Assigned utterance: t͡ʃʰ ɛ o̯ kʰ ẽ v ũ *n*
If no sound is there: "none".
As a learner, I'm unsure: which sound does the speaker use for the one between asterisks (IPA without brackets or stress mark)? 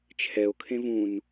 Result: n